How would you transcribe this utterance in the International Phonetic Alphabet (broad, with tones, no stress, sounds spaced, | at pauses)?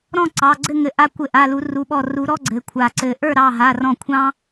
ɾ ɔ̃˥˨ ǀ ɑ˩˧˩ ɡ͡ǀ ɘ˥˨ ŋ ɘ˧˩ ʔ a˦ kʷ ɘ˧˩ ʔ a˩˧˩ l u˨˩˦ r u˩˧˩ ɓ ɔ˧˩ r u˨˩˦ ɾ ɔ˦ ɡ͡ǀ ɘ˩˧˩ kʷʰ a˧˩ ǀ ɘ˧˩ ʔ ə˞˥˨ ɾ ɑ˩˧˩ ɦ a˩˧˩ r ɔ̃˧˩ kʷʰ ɑ̃˦